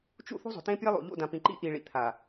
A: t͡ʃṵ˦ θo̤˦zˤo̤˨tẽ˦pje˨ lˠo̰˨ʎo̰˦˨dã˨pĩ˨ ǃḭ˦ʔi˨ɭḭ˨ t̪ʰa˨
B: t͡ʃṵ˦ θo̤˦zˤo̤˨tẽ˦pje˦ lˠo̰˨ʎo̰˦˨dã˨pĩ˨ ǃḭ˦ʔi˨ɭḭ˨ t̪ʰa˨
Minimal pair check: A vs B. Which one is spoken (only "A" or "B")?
B